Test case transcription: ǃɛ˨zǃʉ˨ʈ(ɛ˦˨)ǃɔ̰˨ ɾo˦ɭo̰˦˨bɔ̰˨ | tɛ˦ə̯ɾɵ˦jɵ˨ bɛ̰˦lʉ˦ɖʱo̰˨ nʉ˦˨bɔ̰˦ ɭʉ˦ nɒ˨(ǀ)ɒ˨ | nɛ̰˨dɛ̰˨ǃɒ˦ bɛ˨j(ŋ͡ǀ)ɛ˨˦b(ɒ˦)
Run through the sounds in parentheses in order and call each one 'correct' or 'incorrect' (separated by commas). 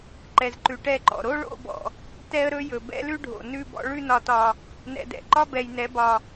correct, incorrect, incorrect, incorrect